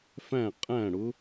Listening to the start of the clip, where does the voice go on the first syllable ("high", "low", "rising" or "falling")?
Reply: falling